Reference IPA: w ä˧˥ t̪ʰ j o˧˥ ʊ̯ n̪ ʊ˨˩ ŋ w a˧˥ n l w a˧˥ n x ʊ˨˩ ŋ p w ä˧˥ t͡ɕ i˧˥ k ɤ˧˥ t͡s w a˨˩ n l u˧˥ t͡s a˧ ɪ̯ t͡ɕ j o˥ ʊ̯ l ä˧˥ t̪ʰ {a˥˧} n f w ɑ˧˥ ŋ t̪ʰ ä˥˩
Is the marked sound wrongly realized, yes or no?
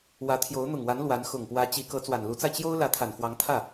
yes